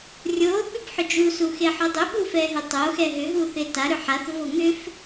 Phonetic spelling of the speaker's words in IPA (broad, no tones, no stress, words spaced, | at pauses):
rʲo ɓʏbħʏd͡ʒu suxeħodˤʏ ɓufɛɦʏtˤo xɛɦʏ ɦuθeta ɾʏħaθ voŋʏf